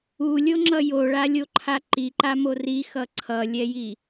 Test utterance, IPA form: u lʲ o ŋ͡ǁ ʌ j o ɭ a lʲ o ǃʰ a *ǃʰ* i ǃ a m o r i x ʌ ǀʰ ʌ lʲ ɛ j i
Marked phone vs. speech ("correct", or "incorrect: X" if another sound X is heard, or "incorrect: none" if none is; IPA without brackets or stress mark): incorrect: ǃ